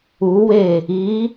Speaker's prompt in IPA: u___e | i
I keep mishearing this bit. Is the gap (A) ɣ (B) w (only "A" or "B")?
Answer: B